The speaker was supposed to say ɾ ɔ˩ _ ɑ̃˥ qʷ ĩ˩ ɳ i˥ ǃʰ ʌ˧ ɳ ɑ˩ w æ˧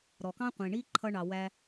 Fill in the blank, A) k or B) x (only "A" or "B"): A